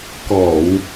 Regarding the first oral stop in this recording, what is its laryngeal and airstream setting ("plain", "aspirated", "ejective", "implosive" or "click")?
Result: plain